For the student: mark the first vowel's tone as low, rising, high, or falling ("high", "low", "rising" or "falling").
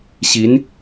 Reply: rising